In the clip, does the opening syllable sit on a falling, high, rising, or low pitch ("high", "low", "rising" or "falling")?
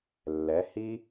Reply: rising